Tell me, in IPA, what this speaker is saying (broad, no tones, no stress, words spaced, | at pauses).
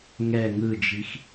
ŋɛ ŋɯd͡ʒix